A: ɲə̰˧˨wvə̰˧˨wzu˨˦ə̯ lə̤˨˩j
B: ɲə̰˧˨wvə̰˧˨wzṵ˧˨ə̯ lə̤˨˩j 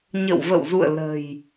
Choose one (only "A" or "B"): B